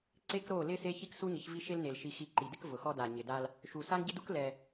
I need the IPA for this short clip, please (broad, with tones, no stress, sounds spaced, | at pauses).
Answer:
ǀ e˦ k ɾ o˦˨ l ɪ˦ s e˦ ç i˦ k s u˦ ɲ ɪ˨˦ ç v i˦ ʃ e˦ l n e˨ l ʃ i˨ x i˨ ǃ i˨ d ɪ˦ k v ʊ˨ x ɔ˦ d a˨ ɲ ɪ˨ d a˦ l | ʃ u˨ s a˦ ŋ ɟ ɪ˦ d u˦ k l ɛ˦